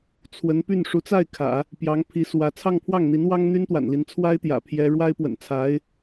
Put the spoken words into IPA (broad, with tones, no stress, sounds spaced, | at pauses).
t͡sʰ w ə˧˥ n p y˥˩ n ʂ u˧˥ t͡s a˥˩ ɪ̯ kʰ ä̰˨˩˦ | p j ɑ˧˥ ŋ pʰ i˧˥ s w ä˧˥ t͡sʰ ɑ˥˧ ŋ pʰ w ɑ˥˩ ŋ n̪ i˧˥ n w ɑ˥ ŋ n̪ y˥ n t̪ w a̰˨˩ n l i˦ n t͡sʰ w a˥ ɪ̯ t̪ j ä̰˨˩ pʰ j ɛ˥ ɻ w a˥ ɪ̯ p w ə̰˨˩ n t͡sʰ a˧˥ ɪ̯